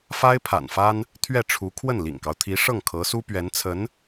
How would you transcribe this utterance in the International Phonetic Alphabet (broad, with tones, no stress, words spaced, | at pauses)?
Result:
fa˥ɪ̯pʰa̰˨˩nfa˥n | t̪ʰɥɛ˥˩ʈ͡ʂʰu˧˥ kʰwə˥˩nlḭ˨˩ŋkɑ˦ʊ̯ t̪ʰi˧˥ʂɤ˥˩ŋkʰɤ˧˥su˥ pɥɛ˧˥nt͡sʰə˧˥n